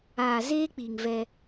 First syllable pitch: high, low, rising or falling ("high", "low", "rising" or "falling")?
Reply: low